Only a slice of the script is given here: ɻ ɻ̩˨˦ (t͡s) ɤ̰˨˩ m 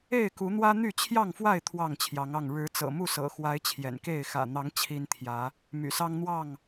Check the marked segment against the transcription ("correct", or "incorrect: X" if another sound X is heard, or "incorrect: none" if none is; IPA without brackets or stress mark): correct